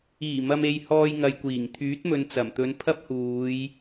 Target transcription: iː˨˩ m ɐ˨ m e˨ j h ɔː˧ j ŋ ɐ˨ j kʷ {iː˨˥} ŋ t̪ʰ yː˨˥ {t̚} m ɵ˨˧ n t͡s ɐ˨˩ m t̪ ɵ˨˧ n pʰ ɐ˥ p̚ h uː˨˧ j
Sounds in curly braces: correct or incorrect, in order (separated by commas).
incorrect, correct